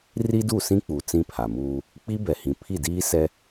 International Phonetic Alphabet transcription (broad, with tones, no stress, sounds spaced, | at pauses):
r i˦ d u˦˨ s ĩ˦ k͡p u˨ t͡s ĩ˦ pʰ a˨ m uː˦ | k͡p i˦ b ɛ˨ h ĩ˨ pʰ i˦˨ d iː˦ s ɛ˦